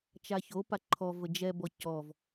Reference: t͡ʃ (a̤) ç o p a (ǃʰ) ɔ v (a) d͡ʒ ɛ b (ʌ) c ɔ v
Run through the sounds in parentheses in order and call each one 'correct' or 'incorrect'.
incorrect: a, correct, incorrect: ə, incorrect: ɔ

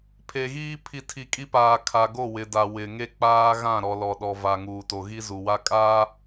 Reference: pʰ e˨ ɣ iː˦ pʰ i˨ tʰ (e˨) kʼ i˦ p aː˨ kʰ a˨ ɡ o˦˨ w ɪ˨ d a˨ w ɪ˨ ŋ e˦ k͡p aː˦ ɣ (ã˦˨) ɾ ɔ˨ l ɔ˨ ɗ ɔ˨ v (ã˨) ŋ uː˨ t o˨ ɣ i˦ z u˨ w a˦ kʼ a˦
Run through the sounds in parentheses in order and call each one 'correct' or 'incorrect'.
incorrect: i˨, correct, incorrect: a˨

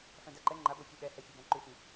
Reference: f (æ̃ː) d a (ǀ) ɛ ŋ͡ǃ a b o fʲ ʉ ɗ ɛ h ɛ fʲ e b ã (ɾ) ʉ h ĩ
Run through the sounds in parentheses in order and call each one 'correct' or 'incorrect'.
incorrect: æ̃, incorrect: ǃ, incorrect: ǃ

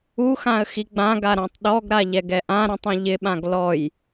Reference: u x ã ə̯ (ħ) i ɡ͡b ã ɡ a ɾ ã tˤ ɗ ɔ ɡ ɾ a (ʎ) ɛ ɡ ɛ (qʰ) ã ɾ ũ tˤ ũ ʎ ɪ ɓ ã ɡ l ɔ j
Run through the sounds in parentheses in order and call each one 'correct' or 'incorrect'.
incorrect: x, correct, incorrect: ʔ

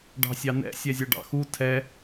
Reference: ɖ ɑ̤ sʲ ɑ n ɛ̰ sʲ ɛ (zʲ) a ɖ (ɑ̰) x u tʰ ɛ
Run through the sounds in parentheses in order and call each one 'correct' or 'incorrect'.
correct, correct

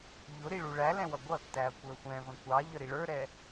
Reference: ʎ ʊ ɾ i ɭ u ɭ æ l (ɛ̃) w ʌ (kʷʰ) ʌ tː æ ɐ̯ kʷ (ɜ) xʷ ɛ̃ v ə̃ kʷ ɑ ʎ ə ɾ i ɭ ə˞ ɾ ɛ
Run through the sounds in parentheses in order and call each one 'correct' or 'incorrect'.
correct, incorrect: ɡʷ, incorrect: ə˞

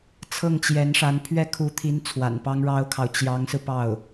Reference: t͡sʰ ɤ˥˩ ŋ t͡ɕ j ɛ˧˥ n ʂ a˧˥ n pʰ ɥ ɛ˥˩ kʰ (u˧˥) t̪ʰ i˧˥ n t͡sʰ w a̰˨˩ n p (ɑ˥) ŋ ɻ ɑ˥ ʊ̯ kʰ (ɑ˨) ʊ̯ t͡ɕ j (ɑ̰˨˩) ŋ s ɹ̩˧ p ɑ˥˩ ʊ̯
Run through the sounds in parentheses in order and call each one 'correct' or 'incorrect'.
correct, correct, correct, incorrect: ɑ˧˥

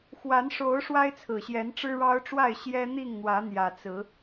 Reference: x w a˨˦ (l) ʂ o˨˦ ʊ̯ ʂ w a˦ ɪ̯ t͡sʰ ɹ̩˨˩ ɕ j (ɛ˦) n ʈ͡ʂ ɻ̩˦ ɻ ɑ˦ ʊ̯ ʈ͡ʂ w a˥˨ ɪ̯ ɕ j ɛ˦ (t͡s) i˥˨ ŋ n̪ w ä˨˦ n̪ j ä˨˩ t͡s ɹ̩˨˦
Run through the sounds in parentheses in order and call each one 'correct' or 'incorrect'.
incorrect: n, incorrect: ɛ˨˦, incorrect: n̪

